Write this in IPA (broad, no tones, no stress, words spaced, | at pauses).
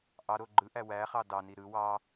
ʔɑɾo ɡ͡ǃɯʔæ wæχɑ dɑni ɾɯ wɑ